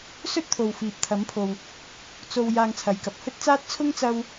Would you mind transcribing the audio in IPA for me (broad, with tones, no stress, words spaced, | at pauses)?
sɵ˥t̚t̪ʰo˨w fiː˨p̚t̪ʰɐ˨˥mpʰo˨w | t͡so˧w jaː˧ŋt͡sʰɐ˨˧jkɐ˨p̚ hɵ˥t̚t͡saː˥t̚ t͡sʰʊ˥ŋt͡sɐ˧w